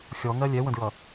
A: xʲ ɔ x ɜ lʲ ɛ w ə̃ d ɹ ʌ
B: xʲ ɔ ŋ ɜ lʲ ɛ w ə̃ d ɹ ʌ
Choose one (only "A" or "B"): B